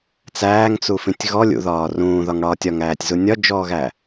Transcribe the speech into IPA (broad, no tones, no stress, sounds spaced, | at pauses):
t͡s æː ŋ t͡s u f ĩ tʲ ɣ ɔ lʲ ṵ ð ɒː r ũː ð ɒ ŋ ɽ ɒː tʲ ɒ ŋ æː tʲ z u nʲ ɒ d͡ʒ ɔː ɣ æ